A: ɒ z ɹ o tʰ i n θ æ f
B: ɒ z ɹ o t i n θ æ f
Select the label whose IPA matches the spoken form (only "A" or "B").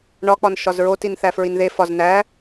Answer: B